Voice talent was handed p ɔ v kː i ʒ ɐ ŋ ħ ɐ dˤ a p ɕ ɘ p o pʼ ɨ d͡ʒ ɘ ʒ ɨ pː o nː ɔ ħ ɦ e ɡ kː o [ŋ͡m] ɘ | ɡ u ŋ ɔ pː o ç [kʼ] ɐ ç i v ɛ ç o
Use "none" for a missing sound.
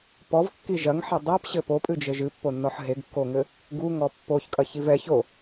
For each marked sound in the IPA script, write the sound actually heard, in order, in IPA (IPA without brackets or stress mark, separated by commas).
ŋ, kʼ